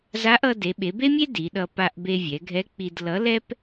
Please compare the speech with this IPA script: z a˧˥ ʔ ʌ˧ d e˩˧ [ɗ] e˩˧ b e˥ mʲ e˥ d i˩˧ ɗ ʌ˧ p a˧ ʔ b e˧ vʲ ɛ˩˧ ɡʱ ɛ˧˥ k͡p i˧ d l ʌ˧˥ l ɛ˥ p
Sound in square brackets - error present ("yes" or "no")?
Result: yes